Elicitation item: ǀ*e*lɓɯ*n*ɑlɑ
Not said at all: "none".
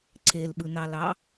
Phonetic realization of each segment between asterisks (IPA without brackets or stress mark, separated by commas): e, n